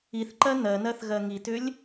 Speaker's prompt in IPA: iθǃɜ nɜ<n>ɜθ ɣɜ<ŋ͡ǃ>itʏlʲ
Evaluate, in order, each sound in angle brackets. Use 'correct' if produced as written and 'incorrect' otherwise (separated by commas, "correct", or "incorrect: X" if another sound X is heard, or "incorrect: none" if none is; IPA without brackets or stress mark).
correct, incorrect: ŋ